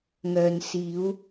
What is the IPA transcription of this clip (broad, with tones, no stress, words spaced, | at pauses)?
ŋœː˧n siː˨˧w